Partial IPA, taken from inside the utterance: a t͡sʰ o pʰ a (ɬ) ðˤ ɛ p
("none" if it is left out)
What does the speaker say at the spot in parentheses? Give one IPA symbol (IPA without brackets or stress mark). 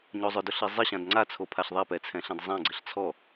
ɬ